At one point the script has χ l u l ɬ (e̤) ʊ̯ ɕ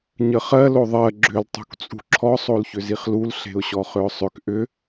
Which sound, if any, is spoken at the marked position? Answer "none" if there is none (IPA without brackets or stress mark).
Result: e̤